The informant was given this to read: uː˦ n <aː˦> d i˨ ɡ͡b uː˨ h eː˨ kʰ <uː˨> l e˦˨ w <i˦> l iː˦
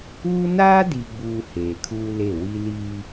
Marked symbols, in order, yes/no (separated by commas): yes, no, yes